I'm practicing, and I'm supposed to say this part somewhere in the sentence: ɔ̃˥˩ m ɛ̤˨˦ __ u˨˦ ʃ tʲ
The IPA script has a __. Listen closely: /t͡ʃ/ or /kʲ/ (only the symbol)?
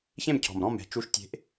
t͡ʃ